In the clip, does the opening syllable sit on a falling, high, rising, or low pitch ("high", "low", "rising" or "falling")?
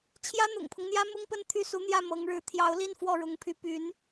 high